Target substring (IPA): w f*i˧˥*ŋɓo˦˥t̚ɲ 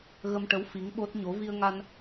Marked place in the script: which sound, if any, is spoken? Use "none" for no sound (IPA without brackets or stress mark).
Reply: i˧˥